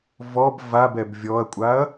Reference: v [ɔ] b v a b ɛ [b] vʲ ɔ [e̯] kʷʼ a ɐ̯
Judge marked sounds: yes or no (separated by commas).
yes, yes, no